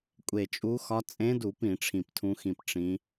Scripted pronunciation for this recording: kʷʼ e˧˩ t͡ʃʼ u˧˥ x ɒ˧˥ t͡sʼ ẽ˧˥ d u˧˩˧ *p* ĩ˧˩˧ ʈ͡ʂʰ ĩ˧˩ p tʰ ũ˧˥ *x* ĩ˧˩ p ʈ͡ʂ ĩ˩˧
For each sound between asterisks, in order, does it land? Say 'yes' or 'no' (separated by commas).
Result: yes, yes